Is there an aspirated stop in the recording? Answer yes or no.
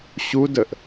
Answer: no